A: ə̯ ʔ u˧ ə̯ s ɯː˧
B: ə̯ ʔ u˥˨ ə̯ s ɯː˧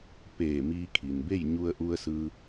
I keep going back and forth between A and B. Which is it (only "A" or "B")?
A